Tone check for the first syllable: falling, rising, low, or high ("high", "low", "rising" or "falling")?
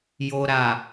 low